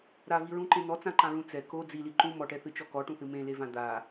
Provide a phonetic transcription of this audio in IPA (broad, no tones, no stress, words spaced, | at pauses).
ɾaviɹũǃẽ n̪ɔt͡sãǃãɹũ t͡sɛ ko d͡zili ǃũ mɔʈɛθɨt͡ʃɔ kɔʈũθɨ mẽlevã d̪a